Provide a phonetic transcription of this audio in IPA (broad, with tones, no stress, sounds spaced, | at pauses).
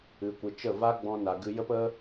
ɨ˨ kʷ ɨ˨ t͡ʃ ə˦˨ v a˦ ɡ͡b ɔ̃˧ n a˨ ɡ ɨ˧ j ə˧ p ə˧